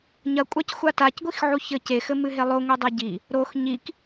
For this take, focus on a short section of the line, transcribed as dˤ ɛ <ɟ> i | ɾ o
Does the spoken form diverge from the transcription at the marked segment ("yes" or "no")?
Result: no